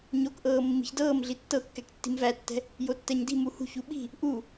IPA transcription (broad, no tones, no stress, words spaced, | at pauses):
ɲokʔɤː mːi̤çdɤːmɮi tːɤkːɛk tːi̤mvætːɛ̤ | jotːɛɲdi̤ muhṳç uɓi̤ | ʔu